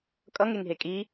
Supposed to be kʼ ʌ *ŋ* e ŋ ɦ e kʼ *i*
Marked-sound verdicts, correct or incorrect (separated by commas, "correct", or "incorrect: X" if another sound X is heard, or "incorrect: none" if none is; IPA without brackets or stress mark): correct, correct